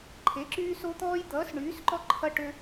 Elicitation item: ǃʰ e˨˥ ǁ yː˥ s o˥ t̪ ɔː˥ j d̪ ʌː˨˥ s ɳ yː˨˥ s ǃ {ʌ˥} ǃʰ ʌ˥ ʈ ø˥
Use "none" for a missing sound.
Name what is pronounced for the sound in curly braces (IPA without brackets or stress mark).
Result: ɔ˥